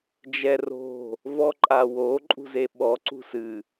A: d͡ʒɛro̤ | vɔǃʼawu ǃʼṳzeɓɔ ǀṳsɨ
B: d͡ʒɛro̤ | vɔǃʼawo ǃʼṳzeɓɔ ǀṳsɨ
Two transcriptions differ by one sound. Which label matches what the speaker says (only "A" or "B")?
B